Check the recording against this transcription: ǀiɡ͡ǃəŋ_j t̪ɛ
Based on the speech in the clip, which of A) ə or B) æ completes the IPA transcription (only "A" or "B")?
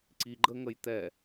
A